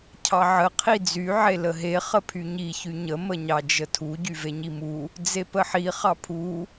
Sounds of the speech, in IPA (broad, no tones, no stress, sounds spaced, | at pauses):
cʰ ɑ ʕ ə qʰ i d͡z y ʕ e l ə ɦ e χ ə pʰ y ɲ i ç y ɲ ə m ə ɲ ɑ d͡ʒ ə tʰ u ɟ y v e ɲ i m u | d͡z e p ə ħ i χ ɑ pʰ u